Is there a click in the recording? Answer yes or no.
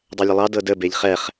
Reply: no